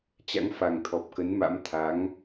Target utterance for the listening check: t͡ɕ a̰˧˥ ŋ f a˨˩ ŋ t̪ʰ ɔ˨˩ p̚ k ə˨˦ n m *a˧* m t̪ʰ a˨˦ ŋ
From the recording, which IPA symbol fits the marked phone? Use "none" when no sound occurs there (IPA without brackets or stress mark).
a̰˧˥